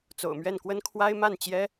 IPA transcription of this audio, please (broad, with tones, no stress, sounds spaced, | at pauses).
t͡s o̰˨˩ ʊ̯ m ɥ ɛ˥˩ n k w ə˥ n kʰ w a˥ ɪ̯ m a˥˩ n t͡ɕ j ɛ˥